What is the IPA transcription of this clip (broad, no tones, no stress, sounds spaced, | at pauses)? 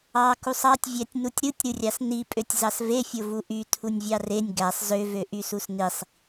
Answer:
ɑ k u sˤ ɑ tʲ vʲ æ tʲ n u tʲ ɾ ɯ tʲ ɾ ɯ rʲ ɑ s n i pʼ ø tʲ z ɑ s v e fʲ o v u ʔ y tʰ u nʲ vʲ ɑ r e nʲ ɡ æ sˤ z ø v ø ʔ y s u s n i sˤ